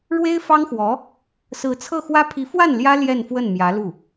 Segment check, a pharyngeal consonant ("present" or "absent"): absent